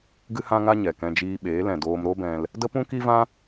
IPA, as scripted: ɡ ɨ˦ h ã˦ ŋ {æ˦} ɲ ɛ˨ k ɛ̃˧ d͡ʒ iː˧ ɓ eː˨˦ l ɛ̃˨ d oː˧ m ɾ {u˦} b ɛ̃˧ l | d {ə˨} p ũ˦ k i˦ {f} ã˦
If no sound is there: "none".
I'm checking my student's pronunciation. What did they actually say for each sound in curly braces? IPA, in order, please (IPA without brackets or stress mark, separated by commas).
a˦, o˦, ə˦, v